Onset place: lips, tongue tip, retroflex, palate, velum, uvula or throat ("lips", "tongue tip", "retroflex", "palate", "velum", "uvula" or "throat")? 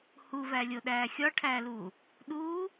throat